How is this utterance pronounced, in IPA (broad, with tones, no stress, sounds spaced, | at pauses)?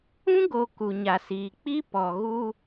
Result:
ũ˦ ɡ o˨ k u˨ ɲ a˨ s iː˨ k͡p i˦ p ɔ˨ ɣ u˦